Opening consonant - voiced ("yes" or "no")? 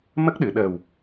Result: yes